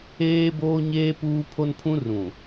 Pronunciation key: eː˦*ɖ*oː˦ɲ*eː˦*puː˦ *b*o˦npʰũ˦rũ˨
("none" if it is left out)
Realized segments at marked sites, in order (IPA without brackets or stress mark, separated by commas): b, eː˦, pʰ